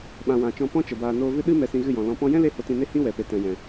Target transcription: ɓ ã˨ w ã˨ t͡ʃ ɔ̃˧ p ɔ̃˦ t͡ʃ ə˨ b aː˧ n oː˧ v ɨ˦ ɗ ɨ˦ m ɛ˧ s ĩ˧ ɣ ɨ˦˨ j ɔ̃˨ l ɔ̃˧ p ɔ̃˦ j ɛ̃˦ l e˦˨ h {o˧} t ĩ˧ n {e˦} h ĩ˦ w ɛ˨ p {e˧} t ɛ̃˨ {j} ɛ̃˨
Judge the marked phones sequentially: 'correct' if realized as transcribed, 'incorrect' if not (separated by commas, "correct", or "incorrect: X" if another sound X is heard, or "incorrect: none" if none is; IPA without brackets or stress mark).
correct, correct, incorrect: e˨, correct